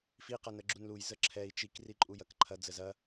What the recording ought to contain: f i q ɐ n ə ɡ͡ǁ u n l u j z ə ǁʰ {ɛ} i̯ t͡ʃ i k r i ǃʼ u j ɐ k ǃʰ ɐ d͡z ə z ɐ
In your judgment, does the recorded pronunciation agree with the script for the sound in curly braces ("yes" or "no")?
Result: yes